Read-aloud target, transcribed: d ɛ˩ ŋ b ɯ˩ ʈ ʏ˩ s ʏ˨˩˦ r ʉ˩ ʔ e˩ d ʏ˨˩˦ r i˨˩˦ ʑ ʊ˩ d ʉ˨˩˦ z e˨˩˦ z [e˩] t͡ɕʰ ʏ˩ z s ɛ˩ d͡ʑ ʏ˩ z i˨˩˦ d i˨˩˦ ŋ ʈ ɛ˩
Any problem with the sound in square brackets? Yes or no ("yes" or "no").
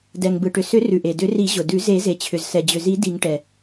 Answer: no